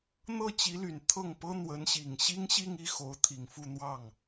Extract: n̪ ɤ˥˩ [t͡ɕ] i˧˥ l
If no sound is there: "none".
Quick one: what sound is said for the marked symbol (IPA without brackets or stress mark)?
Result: t͡ɕ